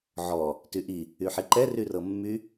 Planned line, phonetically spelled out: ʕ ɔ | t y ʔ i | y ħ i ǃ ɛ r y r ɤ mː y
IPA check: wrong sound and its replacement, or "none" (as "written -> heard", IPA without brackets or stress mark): none